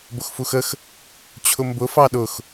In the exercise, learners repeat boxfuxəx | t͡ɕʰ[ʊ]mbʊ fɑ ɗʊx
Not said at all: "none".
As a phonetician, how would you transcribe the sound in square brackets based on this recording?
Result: ʊ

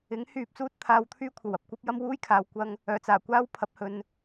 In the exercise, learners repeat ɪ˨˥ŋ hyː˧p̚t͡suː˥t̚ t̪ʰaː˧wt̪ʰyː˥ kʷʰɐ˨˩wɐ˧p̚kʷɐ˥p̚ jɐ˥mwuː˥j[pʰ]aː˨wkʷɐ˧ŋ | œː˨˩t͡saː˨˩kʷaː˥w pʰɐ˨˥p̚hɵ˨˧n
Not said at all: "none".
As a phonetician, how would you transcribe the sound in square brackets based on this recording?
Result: kʰ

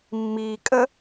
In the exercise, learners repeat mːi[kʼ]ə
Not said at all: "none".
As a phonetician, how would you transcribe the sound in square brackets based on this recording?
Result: kʼ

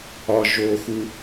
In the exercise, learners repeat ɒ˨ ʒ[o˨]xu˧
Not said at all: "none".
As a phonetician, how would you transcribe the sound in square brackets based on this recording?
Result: o˨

